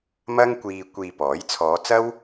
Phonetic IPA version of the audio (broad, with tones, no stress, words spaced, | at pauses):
mɐ˥ŋkʷiː˧ kʷiː˧pɔː˨˥j t͡sʰɔː˨˧t͡sɐ˥w